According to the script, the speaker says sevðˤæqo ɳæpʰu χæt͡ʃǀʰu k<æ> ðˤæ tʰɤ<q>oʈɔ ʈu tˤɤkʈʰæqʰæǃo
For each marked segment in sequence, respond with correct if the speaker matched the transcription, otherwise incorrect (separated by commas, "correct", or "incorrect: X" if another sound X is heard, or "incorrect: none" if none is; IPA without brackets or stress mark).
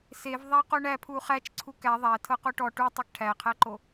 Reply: correct, correct